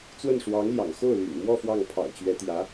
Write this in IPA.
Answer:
t͡s w ə˥˩ n ʂ w ɑ˧˥ ŋ l j ɑ̰˨˩ ŋ x o˥˩ ʊ̯ l y̰˨˩ n m w ɔ˥˧ f w ɑ˥˩ ŋ pʰ ɑ̰˨˩ ʊ̯ t͡ɕ ɥ ɛ˧˥ t̪ j ä˧˥

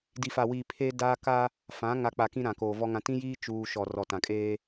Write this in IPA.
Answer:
d i˨ f a˨ w iː˨ pʰ eː˦ d aː˦ k a˦ | f ã˨˦ ŋ a˨ k͡p a˨ k ĩ˦ ɾ ã˨ k oː˨ v ɔ˦ ŋ ã˨ t ĩ˦ j iː˦ t͡ʃ uː˦ ʃ ɔ˨ r ɔ˨ t ã˨ kʼ eː˦

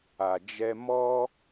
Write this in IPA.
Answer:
a˨ d͡ʒ ɛ˧ m ɔ˦

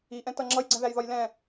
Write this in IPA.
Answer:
i ʔ ɛ̃ t ʌ ŋ͡ǁ ʌ j ɡ͡ǀ ɛ̃ ð æ j ð ɒ j l ɛ̃

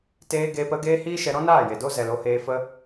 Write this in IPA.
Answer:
t eː˧ ɡ eː˧ p ə˨˦ ɡ eː˦ h iː˦ ʃ ɛ˧ ɾ ɔ̃˦ n aː˦˨ j e˨ d o˦ z ɛ˨ l o˧ h eː˧ f ə˦

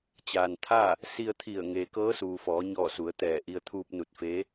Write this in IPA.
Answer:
t͡ɕ aː˩ n t̪ʰ aː˥˨ | s i˧ ə̯ t̪ʰ i˧˩ ə̯ ŋ eː˩ k ɤː˧˥ s uː˩ f ɔː˩˧ ɲ ɔː˧˩ s u˩˧ ə̯ t̪ ɛː˧˩ ʔ i˧ ə̯ t̪ʰ uː˧ p̚ n u˧˩ t̚ f eː˧˥

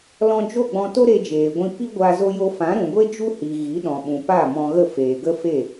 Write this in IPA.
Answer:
l ɔ̃˧ d͡ʒ o˦˨ ɡ͡b ɔ̃˧ t o˦ ɾ e˧ d͡ʒ eː˨ ɡʷ ĩ˧ p i˦ ɡʷ a˧ z o˦ j o˦ f ã˨˦ ɾ ũ˨ ɡʷ e˦ d͡ʒ u˦ h i˨ ɣ i˨˦ ɗ ɔ̃˨ ɓ ũ˨ p a˦˨ m ɔ̃˧ ɣ ə˦˨ f eː˨ ɡ ə˦ f e˦˨

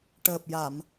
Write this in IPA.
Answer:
ʈ əː˨˩ p̚ j a˨˩˨ m

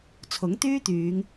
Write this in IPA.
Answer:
t͡sʰ ʊ˨˥ ŋ t̪ yː˥ t̪ yː˨˧ ŋ

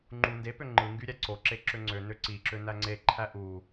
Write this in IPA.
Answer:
ŋ͡ǃ u n d e p ø ŋ͡ǃ ɯ ŋ ɡ y ɾʲ æ ǀ o ǁ e ǁ ø ŋ͡ǀ ø n ø ǀ i ǁ ø n æ ŋ͡ǀ e ǃʰ æ ʔ u

